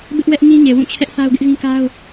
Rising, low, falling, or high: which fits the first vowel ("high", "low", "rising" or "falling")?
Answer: high